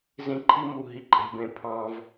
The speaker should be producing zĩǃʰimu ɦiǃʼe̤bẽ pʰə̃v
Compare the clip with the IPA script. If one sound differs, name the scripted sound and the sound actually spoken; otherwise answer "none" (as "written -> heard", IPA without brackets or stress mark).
ə̃ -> ɑ̃